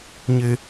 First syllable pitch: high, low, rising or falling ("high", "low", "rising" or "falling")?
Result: low